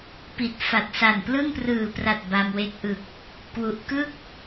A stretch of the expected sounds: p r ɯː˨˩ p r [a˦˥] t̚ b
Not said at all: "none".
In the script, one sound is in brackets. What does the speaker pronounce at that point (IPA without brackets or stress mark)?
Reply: a˨˩